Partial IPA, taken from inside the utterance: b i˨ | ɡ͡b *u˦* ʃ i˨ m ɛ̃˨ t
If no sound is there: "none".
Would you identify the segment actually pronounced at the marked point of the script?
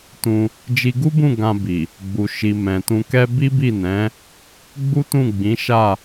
u˨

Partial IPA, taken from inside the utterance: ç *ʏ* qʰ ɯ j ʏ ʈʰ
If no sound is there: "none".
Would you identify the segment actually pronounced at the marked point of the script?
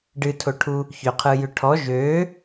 ʏ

